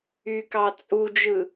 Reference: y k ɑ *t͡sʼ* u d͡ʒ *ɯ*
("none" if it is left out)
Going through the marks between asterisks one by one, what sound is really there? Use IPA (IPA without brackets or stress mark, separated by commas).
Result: t͡sʼ, ɯ